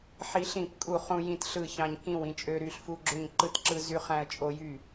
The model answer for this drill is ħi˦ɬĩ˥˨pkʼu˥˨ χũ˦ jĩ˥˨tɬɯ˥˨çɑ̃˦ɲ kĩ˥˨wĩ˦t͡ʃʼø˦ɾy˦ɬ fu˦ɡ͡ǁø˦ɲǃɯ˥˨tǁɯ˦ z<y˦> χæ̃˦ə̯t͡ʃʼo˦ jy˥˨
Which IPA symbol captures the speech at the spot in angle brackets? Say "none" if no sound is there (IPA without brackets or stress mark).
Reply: y˦